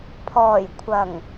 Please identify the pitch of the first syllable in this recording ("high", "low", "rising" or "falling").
low